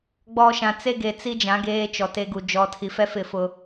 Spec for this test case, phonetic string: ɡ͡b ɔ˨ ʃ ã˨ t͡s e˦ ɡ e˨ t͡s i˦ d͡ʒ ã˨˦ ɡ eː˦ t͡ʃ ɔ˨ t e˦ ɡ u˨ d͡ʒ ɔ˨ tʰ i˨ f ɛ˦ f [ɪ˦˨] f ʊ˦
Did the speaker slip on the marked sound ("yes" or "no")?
no